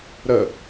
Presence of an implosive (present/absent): absent